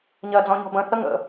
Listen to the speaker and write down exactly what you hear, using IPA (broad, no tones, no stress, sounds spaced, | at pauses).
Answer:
ɲ ɜ d͡z ɔ̃ ɲ ɔ̤ b ə̃ θ ə ŋ ə̰